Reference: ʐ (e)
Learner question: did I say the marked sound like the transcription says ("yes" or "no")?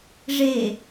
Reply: yes